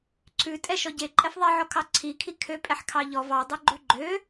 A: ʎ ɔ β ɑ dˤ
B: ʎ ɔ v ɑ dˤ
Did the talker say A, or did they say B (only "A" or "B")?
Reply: B